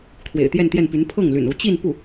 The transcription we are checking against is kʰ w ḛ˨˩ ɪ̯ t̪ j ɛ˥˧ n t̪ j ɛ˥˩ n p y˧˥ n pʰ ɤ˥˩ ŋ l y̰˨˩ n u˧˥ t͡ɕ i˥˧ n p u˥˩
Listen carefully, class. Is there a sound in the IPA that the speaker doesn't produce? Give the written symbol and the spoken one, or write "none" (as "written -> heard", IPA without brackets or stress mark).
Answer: none